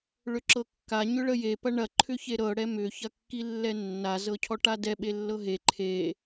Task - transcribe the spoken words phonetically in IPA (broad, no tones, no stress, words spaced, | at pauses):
ɭʏǁɤkːa ɲʏɭəje pɐɳɐ ǃʰʏçeɾɤ ɽɛmʏ çɐkːilːɛnːa zɤcʰɔʈadɛ ɓelːɤɦe ǃʰe